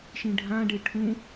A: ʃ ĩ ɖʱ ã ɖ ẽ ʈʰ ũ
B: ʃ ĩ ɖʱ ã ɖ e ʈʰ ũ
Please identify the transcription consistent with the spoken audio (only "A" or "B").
B